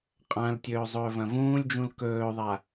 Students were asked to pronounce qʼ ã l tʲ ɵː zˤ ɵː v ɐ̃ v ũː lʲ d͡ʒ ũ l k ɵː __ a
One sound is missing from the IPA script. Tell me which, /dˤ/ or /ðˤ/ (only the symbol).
ðˤ